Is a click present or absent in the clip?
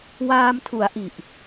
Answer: absent